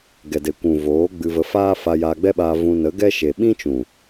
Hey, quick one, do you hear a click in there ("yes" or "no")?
no